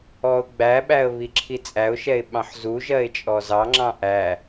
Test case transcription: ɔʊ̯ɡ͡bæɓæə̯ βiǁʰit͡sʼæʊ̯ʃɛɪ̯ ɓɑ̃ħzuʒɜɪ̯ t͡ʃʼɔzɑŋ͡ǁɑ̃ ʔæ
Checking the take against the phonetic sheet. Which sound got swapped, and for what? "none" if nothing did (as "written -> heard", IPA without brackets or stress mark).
none